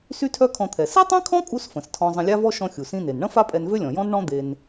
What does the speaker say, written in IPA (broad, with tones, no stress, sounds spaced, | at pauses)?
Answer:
s y˥ tʰ œ˥ kʰ ɔ̃˧ t̪ʰ ɛ˩ s i˥ tˤ ĩ˥ kʰ ɔ̃˥ kʼ u˥ s f ə̃˩ s tʰ ɔ̃˧ zˤ ə̃˧ lʲ a˥ v ɔ˥ ʃ ɔ̃˧ xʲ u˩ s ĩ˧ n e˩ n ɳ ə̃˥ f a˥ pʼ ɛ˧ n v ø˥ lʲ ɔ̃˩ j ɔ̃˥ n ɳ ɔ̃˥ d̪ e˧ n